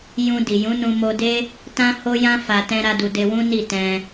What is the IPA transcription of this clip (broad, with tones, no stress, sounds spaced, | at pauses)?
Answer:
j ũ˧ d i˨ j ũ˨˦ n ũ˧ m o˧ d e˦ | t ã˦ h o˦ j ã˦ f a˧ t ɛ̃˦ ɾ a˦ d u˧ d e˧ w ũ˦ n i˦˨ t ɛ̃˧